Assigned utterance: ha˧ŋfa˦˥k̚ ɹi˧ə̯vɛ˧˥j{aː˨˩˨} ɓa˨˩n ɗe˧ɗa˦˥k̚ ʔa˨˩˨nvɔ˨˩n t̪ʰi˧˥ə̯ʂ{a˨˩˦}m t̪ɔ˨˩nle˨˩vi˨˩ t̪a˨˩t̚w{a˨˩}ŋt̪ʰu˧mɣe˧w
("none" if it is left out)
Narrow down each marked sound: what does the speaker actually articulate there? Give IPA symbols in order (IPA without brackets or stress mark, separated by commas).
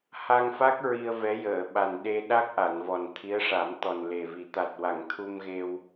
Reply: əː˨˩˨, a˨˩˦, a˨˩˨